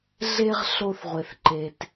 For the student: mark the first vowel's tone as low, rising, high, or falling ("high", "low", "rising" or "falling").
high